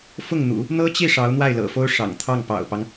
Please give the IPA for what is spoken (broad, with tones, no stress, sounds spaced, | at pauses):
f ʊ˥˩ ŋ n̪ ṵ˨˩˦ | n̪ ɤ˥ t͡ɕ i˥˩ ʂ ɑ˧˥ ʊ̯ n̪ w a˥˩ ɪ̯ l ɤ̰˨˩ f o˥ ʊ̯ ʂ ɑ̰˨˩ ŋ t̪ʰ ɑ˥˩ ŋ p ɑ̰˨˩ ʊ̯ p ɑ˦ ŋ